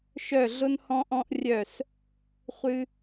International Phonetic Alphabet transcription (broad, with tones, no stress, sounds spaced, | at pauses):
ʃ œ˦˨ ɮ ʊ˦ n h ɔ̃˦ ʔ ɔ̃˦ ʔ rʲ œ˦˨ s | χʷ ɨ˦